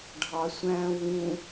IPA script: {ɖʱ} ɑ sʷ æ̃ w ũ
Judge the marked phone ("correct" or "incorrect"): correct